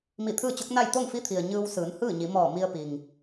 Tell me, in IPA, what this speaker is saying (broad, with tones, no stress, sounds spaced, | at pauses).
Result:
m i˧˩ t̪ʰ ɯː˥˨ t͡ɕ o˧˥ k̚ n a˥˨ j t̪ o˥˨ ŋ f i˧˥ t̪ʰ i˩ ə̯ ɲ ɯː˧ w s ɯː˩˧ n h ɯː˥˨ ɲ i˩˧ m ɔː˧˩ m i˧ ə̯ p i˩ ŋ